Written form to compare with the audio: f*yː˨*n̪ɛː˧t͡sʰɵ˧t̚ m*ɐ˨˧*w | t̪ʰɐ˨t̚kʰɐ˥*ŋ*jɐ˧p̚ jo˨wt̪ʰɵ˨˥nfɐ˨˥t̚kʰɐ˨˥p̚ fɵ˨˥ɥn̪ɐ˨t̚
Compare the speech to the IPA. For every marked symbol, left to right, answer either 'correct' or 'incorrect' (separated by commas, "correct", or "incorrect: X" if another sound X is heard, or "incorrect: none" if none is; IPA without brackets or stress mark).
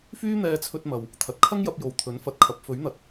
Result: incorrect: yː˥, incorrect: ɐ˨, correct